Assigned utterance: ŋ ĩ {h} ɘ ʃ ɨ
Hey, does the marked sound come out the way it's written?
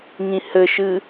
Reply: yes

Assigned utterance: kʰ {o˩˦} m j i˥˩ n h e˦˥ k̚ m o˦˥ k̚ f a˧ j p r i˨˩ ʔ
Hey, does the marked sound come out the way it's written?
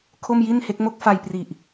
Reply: no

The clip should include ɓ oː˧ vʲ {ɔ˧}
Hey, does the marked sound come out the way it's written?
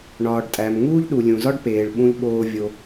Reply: no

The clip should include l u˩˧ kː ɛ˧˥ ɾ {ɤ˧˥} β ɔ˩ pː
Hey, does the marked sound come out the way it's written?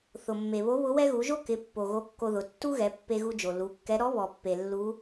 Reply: no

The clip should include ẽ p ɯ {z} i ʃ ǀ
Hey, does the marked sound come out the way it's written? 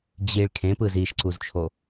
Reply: yes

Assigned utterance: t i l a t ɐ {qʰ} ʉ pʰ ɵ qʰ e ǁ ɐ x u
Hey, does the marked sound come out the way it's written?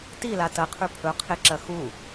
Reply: yes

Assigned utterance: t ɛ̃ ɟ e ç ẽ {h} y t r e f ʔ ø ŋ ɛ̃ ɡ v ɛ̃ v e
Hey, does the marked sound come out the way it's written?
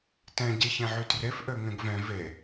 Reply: no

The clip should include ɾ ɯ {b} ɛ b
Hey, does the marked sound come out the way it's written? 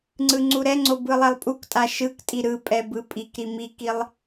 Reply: no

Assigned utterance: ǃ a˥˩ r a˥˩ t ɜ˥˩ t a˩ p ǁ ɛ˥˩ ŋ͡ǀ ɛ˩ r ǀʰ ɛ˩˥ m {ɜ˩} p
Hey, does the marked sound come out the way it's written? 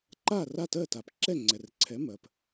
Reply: yes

